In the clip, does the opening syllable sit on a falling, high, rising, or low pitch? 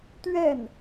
falling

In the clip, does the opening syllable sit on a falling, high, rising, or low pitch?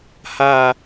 low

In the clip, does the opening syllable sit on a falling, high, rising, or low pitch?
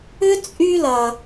high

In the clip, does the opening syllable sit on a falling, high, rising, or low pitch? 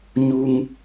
high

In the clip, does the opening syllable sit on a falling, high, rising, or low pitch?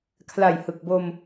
low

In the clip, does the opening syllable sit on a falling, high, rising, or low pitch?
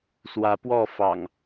rising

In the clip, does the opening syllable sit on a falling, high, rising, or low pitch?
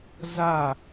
falling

